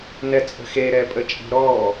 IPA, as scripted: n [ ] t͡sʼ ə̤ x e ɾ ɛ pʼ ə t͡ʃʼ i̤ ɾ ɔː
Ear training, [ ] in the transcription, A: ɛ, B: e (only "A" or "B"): A